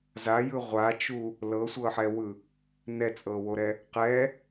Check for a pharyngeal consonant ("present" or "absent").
present